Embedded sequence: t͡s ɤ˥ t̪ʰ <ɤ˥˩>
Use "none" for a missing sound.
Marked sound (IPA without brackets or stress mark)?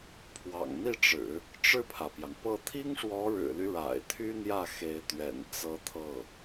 ɤ˥˩